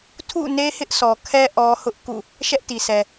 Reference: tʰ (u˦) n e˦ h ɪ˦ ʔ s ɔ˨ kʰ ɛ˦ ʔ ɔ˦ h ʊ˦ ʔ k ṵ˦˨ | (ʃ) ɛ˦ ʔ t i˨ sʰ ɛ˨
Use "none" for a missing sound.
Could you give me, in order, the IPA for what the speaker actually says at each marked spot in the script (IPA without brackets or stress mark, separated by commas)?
ṵ˦˨, ʃ